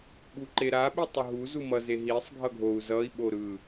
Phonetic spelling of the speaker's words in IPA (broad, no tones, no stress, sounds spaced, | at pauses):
ɓ u ǃ e ɾ a ɓ i tˤ o ɦ u z u m ʌ z e ɦ i sˤ ɡʱ ʌ ɡʱ o u̯ z ʌ i̯ ɓ o ɾ ɯ